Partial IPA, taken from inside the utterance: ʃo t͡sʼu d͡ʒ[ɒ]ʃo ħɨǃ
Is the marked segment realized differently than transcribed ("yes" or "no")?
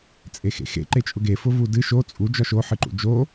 no